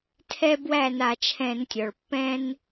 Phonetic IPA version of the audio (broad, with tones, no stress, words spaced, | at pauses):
tʰɛ˦bwæ˥˩ na˧˩˧t͡ʃʰɛ̃˧˩˧ntʲɔ˩ɭ pːɛ̃˦n